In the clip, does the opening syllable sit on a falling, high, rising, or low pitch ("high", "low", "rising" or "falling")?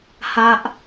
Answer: low